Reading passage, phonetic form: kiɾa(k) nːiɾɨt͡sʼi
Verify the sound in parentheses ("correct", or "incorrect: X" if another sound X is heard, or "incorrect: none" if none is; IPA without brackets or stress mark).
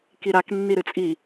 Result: correct